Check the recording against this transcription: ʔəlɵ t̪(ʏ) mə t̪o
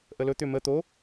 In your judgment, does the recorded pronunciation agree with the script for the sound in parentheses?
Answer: yes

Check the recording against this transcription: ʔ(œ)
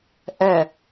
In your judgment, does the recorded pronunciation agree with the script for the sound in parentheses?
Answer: yes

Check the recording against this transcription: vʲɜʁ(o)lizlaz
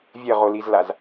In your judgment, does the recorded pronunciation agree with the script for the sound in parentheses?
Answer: yes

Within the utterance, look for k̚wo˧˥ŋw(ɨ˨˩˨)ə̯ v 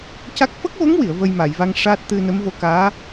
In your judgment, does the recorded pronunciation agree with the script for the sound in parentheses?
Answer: no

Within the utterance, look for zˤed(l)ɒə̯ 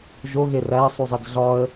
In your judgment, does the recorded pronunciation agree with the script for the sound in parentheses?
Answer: no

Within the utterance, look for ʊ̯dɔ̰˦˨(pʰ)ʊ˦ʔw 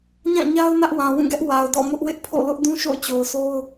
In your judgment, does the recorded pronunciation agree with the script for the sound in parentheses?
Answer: no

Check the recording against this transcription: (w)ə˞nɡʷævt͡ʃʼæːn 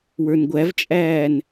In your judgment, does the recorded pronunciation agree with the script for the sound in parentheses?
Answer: yes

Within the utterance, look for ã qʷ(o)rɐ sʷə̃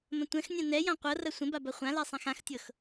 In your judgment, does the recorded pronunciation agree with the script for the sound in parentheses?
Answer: no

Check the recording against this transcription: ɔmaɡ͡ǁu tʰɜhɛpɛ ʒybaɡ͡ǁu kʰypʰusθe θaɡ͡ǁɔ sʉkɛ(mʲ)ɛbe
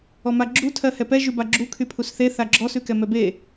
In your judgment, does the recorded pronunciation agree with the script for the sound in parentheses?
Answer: no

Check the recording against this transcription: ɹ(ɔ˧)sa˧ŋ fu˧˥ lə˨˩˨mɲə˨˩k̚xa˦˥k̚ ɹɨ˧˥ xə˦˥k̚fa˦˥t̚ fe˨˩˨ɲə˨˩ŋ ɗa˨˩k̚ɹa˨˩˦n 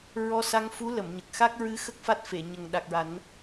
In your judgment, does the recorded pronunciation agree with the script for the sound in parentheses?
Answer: yes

